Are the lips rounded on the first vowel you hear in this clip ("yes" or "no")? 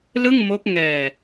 no